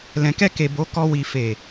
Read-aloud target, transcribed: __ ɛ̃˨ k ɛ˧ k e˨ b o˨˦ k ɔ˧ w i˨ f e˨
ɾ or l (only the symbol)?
l